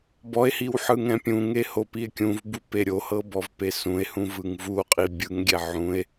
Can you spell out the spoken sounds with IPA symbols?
b ɔ e̯ h i w ħ ɯ ŋ ɛ̃ pʲ ũ ŋ e h o p i e̯ kʲ ũ v b u p e ɾʲ o h ɤ b ɔ v p e s ũ e̯ h ũ v ɯ ŋ v u o̯ qʼ i bʲ ɯ ŋ ɡʲ ɛ ʕ ũ e̯

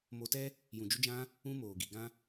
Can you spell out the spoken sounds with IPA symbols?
m o˧ t ɛ˦ | j ũ˨ d͡ʒ u˧ d͡ʒ ã˧ | ũ˦ m oː˨ ɡ i˨ ɡ ã˦

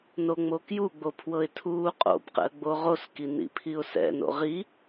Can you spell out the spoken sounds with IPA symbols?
n o ŋ͡m o k j u ɡ͡b o pʰ w ɤ ɪ̯ tʰ uː qʼ o̰ b q ɛ̰ ə̯ ɡ͡b o ʁ o s k i n ḭ pʰ i ʊ̯ s ɛ̰ n o̰ ʁ i

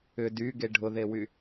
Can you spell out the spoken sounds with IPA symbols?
ʏ d y ɡ e ɖʱ ʊ ð e w y

